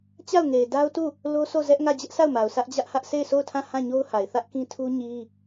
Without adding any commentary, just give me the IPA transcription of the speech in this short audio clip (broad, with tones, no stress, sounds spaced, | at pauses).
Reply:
t͡ɕ a˦˨ ʊ̯ ŋ e˨ ɪ̯ d a˦ ʊ̯ t u˦˨ | l o˦ sʰ o˦˨ z ɛ˦ ʔ ŋ ä˦˨ d͡ʑ ɛ˦ ʔ sʰ a˦˨ ʊ̯ m a˨ ʊ̯ s ä˦ ʔ d͡ʑ ä˦ ʔ h ä˦ ʔ s e˦˨ ɪ̯ s o˦˨ ʊ̯ tʰ ã˦˨ h ã˦˨ ɲ o˦ ʊ̯ h a˨ ɪ̯ θ ä˦ ʔ k ĩ˦ tʰ u˦ ɲ i˦